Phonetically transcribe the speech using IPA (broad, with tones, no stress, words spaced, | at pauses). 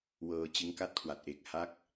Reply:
wɤː˧t͡ɕɯ˦˥ŋka˥˩t̚kʰwa˨˩t̚ ʔe˨˩k̚ ha˦˥k̚